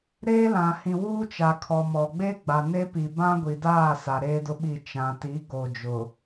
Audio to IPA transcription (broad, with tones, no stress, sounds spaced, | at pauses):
ɾ eː˦ l ã˨ h ĩ˨ w uː˦ t͡ʃ a˨ kʰ ɔ˨ m ɔ˨ ɡ͡b eː˦ ɡ͡b a˨ n e˦ p i˨ b ã˦ ɡʷ i˨ d aː˦˨ s a˨ ɾ eː˦ d ʊ˦ ɓ i˦˨ t͡ʃ ã˨ t i˨˦ ɡ o˨ d͡ʒ ʊ˨